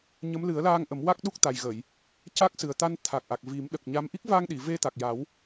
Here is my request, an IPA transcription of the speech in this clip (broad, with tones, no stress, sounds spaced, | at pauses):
ɲ ə˧˥ m l ɨ˨˩˦ ə̯ l aː˧ ŋ ʔ ə˨˩˦ m w a˦˥ k̚ ɗ u˦˥ k̚ t̪ a˨˩ j ɣ ə˨˩˨ j | c a˦˥ k̚ s ɨ˨˩ ə̯ t̪ a˧ n t̪ʰ a˨˩ k̚ ʔ a˨˩ k̚ v i˨˩˦ m ɗ ə˨˩ k̚ ɲ a˧˥ m ʔ i˦˥ k̚ v a˧ ŋ ɗ i˨˩˨ v e˧ t̪ a˨˩ k̚ j a˨˩˦ w